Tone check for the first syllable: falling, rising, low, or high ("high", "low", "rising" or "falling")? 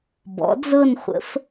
rising